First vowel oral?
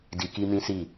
yes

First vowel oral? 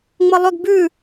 yes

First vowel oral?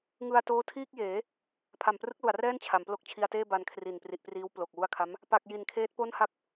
yes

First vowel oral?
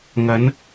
yes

